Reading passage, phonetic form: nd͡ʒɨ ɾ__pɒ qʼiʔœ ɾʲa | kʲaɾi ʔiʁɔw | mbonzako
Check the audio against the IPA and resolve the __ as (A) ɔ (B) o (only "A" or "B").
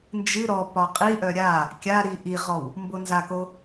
A